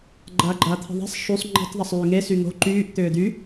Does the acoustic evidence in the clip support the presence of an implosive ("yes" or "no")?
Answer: no